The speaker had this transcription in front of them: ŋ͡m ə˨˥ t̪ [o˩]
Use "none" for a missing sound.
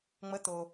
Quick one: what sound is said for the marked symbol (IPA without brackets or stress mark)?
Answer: o˩